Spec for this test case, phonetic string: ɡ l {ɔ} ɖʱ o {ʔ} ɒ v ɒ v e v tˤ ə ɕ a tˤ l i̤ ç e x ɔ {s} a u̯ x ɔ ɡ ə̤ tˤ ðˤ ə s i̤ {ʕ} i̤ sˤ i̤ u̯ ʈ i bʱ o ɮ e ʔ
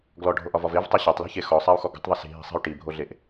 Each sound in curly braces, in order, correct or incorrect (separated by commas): correct, correct, incorrect, incorrect